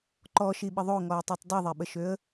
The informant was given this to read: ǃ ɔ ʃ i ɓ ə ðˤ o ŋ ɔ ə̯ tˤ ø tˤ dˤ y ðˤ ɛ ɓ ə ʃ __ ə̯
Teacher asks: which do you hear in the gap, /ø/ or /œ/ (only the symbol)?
ø